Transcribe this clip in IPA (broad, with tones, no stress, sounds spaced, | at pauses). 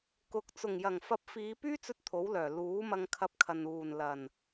k ʊ˨ k̚ t͡s ʊ˨˩ ŋ j ɐ˨˩ ŋ f ɐ˨˥ p̚ f iː˨˧ p yː˥ t͡s ɵ˧ t̚ t̪ʰ o˨˥ w l œː˨˩ l uː˨˥ m ɐ˧ ŋ kʰ ɐ˧ p̚ kʰ ɐ˨ n uː˨˩ n l ɐ˨˩ n